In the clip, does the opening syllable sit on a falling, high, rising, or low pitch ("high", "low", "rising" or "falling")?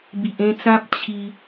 low